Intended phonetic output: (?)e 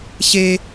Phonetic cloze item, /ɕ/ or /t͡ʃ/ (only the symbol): ɕ